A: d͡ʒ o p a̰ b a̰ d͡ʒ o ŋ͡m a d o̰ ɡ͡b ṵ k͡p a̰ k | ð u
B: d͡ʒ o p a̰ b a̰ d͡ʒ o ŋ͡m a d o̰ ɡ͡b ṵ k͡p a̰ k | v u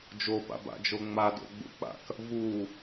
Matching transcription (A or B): B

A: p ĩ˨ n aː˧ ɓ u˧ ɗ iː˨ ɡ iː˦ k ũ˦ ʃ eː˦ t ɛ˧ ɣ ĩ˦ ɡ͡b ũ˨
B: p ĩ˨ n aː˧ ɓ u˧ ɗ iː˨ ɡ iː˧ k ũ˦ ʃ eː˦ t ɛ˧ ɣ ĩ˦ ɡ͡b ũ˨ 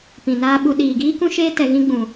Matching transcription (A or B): A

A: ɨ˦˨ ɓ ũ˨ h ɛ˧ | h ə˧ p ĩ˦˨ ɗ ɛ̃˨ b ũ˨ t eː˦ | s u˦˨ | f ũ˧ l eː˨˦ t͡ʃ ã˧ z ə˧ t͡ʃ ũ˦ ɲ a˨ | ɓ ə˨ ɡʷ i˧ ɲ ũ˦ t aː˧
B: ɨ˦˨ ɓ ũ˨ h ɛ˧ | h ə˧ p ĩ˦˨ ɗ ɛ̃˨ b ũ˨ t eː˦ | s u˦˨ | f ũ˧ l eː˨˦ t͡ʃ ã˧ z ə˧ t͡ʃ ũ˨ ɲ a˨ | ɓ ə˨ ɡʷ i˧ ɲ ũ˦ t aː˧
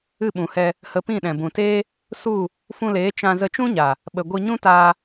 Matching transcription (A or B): A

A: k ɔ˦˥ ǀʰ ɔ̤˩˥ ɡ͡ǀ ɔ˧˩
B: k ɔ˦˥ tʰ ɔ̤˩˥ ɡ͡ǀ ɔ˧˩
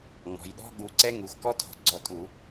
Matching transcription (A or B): B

